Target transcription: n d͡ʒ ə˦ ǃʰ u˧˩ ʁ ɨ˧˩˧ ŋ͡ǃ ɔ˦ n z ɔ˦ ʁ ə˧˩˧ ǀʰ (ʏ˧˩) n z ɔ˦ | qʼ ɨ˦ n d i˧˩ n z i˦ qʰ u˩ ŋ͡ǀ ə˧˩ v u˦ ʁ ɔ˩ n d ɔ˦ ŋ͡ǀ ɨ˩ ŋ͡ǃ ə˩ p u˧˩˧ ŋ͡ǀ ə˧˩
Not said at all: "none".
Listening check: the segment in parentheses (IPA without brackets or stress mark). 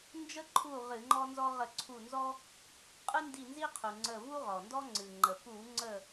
u˧˩